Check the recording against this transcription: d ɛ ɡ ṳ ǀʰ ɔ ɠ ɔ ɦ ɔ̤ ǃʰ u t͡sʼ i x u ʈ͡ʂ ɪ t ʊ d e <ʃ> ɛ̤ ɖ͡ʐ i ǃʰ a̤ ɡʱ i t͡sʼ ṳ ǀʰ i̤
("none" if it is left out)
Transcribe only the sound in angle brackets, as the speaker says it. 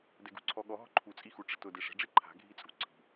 ʂ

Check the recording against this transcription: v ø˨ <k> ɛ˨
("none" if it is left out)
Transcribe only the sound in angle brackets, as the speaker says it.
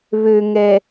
ŋ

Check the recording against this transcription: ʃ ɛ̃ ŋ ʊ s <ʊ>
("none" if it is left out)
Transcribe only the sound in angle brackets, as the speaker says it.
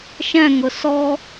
ɔ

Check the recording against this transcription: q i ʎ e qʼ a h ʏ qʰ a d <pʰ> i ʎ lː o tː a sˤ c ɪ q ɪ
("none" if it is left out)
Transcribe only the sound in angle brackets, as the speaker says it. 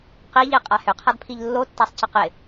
pʰ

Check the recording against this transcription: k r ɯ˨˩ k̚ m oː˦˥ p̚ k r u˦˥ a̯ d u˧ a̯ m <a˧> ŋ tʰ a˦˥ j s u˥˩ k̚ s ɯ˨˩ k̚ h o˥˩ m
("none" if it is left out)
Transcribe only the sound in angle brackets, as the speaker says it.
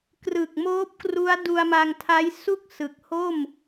a˧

